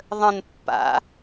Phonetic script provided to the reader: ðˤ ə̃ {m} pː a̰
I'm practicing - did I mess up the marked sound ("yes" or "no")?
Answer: yes